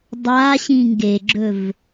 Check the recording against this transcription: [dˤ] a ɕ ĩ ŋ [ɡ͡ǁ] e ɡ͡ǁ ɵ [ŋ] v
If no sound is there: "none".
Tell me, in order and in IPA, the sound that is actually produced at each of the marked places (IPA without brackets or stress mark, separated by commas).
dˤ, ɡ, none